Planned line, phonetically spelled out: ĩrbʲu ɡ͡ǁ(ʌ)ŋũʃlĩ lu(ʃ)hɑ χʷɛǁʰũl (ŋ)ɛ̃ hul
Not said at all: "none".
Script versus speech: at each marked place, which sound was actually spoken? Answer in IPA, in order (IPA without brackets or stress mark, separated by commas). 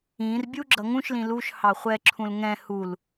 ʌ, ʃ, ŋ